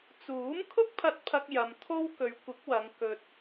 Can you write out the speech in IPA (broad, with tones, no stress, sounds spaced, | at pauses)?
t͡s uː˨˥ m kʰ ʊ˥ k̚ pʰ ɐ˧ t̚ pʰ ɐ˧ k̚ j ɐ˧ m t̪ʰ o˥ w k ɵ˨˧ ɥ kʷ ɪ˨˥ k̚ w ɐ˨˧ ŋ k ɵ˧ t̚